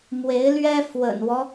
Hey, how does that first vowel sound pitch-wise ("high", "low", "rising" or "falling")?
rising